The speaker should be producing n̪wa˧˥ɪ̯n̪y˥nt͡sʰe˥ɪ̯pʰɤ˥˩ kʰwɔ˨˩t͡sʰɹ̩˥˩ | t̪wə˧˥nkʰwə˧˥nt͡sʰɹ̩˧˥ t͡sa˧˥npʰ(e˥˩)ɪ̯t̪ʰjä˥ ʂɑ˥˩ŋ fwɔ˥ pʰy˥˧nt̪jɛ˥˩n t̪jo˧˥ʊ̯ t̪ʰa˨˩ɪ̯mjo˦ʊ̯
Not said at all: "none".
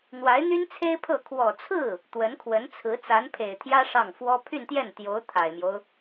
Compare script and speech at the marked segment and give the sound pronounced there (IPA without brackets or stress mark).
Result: e˨˩